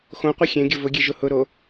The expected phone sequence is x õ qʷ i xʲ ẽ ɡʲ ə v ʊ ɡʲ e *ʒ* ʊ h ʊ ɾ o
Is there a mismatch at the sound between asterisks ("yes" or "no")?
no